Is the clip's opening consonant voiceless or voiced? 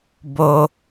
voiced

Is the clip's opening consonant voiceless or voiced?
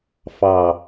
voiceless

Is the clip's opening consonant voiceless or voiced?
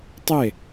voiceless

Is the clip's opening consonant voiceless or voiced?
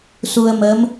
voiceless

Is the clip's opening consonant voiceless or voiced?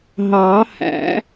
voiced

